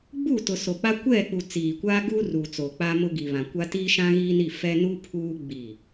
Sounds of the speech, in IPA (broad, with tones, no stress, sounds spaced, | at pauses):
ɡ͡b uː˦˨ t ʊ˨ s o˨ k͡p a˦ kʷ ɛ˦˨ k͡p u˨ t͡s iː˨ kʷ aː˦ ɡ uː˦ r uː˨ t͡s o˨ k͡p a˦ m ʊ˦ ɡ i˨ β ã˨ kʷ a˦ t iː˦ ʃ ã˦ ɣ iː˦ n i˦˨ f ɛ˦ n u˦ pʰ uː˦ ɡ͡b i˦˨